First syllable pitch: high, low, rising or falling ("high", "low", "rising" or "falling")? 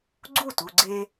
falling